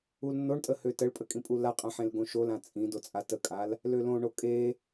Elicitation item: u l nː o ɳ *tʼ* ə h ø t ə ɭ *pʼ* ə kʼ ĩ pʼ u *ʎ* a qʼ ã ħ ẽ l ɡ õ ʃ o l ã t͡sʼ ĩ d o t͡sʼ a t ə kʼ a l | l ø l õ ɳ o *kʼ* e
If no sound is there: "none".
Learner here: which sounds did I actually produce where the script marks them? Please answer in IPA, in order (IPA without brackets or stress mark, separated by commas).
tʼ, pʼ, l, kʼ